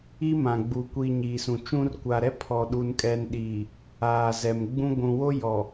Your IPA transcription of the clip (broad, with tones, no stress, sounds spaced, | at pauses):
i˦ m ã˨ ɡ͡b u˨ kʷ i˨ ɲ iː˨ s ũ˨ t͡ʃ ũ˦ r kʷ a˨ ɾ ɛ˦ pʰ ɔ˨ ɗ u˨ n kʼ ɛ˨ n ɗ i˨ | aː˨ z ɛ˨ m ɡ͡b ũ˦ ɡʷ ũ˨ w o˦ j ɔ˨